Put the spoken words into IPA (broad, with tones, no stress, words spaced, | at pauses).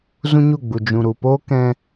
zũ˦ɲu˦˨ɡ͡bu˨ d͡ʒũ˨ɾu˨poː˦kɛ̃˧